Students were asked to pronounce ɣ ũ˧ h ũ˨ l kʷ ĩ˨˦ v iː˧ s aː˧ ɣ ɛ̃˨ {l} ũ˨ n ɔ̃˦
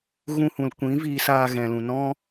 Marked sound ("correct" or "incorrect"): correct